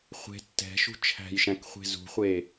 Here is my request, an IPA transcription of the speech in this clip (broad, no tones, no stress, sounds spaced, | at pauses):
χʷ e̤ tː ɛ̤ ʃ ṳ t͡ʃʰ æ̤ j ʃ æ̃ k χʷ e̤ z ṳ χʷ e